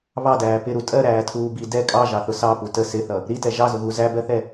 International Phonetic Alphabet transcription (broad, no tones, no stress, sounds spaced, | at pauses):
β ɑ d æː p ɪ ɾ u tʼ ɜ ɾ æː tʰ uː b i d ɛ kʼ ɑ ʒ ɑ θ ʊ s ɑ p u t ə s ɪ θ ʌ | ɾ i t ɛ ʒ ɑ z ʊ ɣ u z æ b ɜ θ ɛ